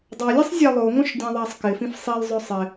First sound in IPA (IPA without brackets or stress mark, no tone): dˤ